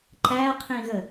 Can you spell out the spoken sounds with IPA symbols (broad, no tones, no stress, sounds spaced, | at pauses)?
ǃ æ qʰ ĩ ɣ ə